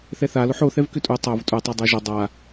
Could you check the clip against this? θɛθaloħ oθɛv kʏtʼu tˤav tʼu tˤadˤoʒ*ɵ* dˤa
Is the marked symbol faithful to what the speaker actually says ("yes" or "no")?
yes